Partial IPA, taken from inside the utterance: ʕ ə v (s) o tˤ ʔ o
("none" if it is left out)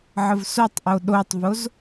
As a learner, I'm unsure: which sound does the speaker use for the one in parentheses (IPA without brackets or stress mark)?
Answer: s